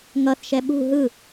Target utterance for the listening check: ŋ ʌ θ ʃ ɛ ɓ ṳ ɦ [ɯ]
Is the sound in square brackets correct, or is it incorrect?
correct